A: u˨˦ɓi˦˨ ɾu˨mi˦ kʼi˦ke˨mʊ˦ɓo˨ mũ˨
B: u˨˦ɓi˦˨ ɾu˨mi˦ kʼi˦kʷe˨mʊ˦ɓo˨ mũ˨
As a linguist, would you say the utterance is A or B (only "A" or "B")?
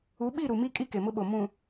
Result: A